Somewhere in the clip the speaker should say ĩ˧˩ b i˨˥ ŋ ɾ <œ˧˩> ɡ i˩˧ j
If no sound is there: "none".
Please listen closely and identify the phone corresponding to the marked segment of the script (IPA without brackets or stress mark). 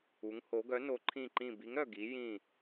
œ˧˩